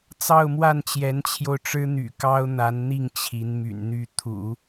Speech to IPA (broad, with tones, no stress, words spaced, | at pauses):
t͡sɑ˥˧ʊ̯mwa˥˩nt͡ɕjɛ˧˥nt͡ɕʰjo˧ʊ̯ ʈ͡ʂɻ̩˥n̪y̰˨˩ kɑ˥ʊ̯n̪a˧˥nn̪i˥˩ŋ t͡ɕʰi˧˥nmy̰˨˩nn̪y˥˩ t̪ʰṵ˨˩˦